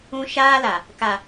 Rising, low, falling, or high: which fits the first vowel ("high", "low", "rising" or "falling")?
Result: high